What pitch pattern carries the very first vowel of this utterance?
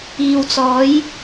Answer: low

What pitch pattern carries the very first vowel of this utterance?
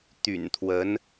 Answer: low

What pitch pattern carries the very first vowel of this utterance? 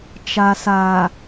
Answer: low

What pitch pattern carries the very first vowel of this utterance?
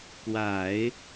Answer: low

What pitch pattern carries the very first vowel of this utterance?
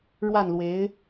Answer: falling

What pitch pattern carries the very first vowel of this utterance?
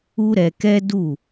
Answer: high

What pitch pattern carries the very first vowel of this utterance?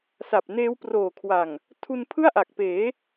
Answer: low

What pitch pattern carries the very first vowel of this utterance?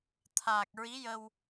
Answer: low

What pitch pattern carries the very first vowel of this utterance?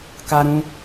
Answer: high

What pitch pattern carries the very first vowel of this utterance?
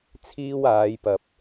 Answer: high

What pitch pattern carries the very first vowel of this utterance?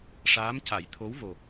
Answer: rising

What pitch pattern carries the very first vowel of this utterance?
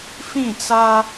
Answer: falling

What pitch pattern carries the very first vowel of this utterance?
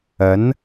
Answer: rising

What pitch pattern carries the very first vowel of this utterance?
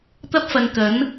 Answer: high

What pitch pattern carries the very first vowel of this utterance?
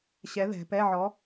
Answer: rising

